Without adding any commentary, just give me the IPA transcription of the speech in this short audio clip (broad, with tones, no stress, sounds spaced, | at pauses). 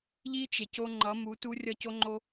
ʎ i˦ t͡ʃ e˨ c o˦ ŋ͡ǃ ʌ˨˦ m u˨˦ t u˦ rʲ ʌ˦˨ c o˦ ŋ͡ǃ o˦